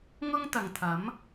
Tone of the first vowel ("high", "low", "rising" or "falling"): high